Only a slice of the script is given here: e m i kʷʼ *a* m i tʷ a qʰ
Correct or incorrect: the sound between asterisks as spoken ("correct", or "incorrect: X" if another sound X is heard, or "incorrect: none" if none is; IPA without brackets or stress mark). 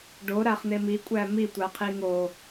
incorrect: æ